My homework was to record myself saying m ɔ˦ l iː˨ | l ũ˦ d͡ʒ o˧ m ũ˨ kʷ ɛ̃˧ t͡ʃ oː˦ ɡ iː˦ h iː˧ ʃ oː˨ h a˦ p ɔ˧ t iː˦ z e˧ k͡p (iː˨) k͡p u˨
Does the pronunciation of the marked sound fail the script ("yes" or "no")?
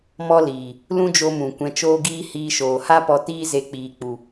no